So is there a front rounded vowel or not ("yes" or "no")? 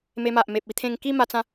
no